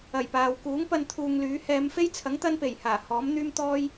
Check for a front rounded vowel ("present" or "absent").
present